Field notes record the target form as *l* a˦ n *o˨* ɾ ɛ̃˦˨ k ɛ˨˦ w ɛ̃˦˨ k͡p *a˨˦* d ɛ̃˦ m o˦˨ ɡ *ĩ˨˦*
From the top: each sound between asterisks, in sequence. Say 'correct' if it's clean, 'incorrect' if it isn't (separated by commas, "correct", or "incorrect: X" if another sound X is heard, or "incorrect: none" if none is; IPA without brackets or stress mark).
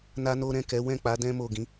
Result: incorrect: n, incorrect: o˦, correct, correct